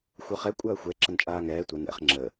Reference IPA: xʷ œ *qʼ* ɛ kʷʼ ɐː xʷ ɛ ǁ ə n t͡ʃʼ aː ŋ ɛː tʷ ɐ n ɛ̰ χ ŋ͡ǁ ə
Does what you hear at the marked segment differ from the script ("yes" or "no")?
yes